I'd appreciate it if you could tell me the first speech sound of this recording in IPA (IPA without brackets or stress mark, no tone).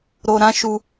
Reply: ɾ